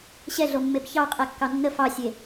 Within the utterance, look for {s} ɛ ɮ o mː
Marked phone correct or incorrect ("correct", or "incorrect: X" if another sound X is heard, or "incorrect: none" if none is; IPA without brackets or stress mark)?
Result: incorrect: ɕ